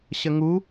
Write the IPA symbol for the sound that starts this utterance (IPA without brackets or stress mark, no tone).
ɕ